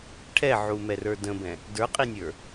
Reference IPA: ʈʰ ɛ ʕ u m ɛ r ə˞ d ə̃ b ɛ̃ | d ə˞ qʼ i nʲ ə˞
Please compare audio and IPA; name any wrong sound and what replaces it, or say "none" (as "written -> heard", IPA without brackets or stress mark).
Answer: none